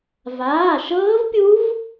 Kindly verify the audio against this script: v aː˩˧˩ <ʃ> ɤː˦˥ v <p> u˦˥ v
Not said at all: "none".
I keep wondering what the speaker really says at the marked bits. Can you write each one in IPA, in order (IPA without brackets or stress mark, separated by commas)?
ʃ, pʲ